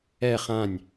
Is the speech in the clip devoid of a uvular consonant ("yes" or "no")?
no